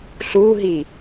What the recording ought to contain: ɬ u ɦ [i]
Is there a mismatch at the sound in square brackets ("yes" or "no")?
no